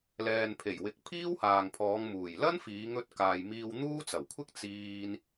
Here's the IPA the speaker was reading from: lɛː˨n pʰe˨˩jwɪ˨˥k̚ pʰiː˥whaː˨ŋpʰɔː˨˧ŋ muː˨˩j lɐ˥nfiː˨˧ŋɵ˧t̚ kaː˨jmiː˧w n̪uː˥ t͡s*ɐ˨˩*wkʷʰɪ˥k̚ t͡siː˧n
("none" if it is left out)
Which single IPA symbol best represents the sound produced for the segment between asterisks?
ɐ˨˩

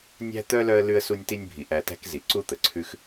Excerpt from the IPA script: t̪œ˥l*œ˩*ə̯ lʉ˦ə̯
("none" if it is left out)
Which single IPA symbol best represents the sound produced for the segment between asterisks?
œ˦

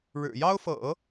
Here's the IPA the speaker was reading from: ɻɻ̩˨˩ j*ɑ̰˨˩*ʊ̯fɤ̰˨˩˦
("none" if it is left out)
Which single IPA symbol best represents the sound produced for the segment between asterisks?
ɑ˥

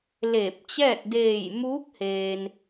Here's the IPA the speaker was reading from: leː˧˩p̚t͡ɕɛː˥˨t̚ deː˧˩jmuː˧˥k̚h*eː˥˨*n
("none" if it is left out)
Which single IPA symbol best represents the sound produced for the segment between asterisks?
eː˩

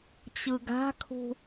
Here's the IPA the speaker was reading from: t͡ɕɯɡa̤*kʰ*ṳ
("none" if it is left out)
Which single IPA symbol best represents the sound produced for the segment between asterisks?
kʰ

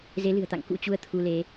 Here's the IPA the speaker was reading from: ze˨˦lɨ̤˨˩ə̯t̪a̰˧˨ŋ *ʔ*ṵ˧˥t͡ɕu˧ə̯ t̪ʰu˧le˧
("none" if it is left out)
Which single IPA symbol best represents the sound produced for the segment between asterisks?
k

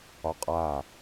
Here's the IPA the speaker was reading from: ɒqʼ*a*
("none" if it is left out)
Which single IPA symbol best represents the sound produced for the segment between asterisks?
a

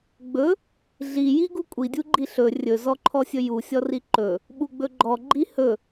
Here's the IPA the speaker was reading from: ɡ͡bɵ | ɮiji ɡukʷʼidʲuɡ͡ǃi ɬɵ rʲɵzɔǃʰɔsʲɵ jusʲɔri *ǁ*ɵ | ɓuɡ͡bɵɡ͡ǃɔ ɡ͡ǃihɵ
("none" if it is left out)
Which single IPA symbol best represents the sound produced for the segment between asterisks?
ǃ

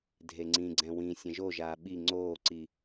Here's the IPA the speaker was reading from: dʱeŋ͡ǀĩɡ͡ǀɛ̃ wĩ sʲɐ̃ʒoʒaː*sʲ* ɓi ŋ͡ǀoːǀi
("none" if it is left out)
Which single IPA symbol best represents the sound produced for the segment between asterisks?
none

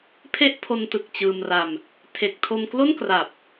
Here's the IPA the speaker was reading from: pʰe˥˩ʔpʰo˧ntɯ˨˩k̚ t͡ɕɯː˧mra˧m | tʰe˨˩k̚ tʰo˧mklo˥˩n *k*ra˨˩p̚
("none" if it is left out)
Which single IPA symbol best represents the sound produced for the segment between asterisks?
k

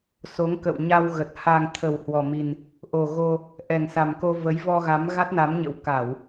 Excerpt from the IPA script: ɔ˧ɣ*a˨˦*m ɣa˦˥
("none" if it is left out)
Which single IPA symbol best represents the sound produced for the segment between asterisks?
a˨˦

